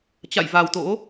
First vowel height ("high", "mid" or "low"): low